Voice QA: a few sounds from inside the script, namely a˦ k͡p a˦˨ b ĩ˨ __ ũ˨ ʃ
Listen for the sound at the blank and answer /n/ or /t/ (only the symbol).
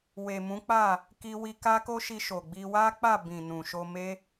n